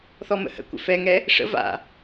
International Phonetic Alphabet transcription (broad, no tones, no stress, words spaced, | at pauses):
θɔmə̰hə̰kʷə̰ fɛŋɛ | ʂə̰ va̰